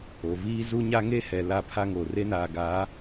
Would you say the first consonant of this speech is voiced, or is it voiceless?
voiced